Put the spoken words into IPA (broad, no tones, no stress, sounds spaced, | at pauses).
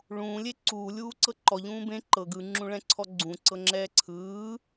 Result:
ɭ ũː lʲ e ǀ uː lʲ uː ǀ ɤ ǃ ɔ ʎ ũː b ẽ ǃ ɤ ɡ ɯ ŋ͡ǁ ũ ɭ ɛ̃ ǀʰ ɔ ɡ͡ǀ ũ ǀ ɤ ŋ͡ǁ ɛː ǀʰ ɯː